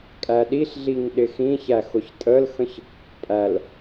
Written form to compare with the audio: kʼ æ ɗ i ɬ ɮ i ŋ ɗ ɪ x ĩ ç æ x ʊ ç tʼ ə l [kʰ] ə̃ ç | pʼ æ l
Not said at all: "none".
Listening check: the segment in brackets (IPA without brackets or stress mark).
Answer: x